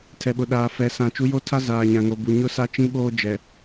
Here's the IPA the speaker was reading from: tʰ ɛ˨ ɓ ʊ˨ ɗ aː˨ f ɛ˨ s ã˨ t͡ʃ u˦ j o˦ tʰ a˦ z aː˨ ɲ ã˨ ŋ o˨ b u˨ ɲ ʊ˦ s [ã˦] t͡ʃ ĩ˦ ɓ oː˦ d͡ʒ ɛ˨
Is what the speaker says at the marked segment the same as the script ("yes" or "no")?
no